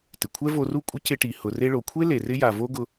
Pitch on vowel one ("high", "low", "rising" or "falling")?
low